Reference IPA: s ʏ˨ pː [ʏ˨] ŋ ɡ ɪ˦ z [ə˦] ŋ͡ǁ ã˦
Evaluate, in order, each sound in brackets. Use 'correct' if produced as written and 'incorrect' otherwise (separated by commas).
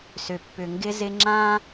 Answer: correct, incorrect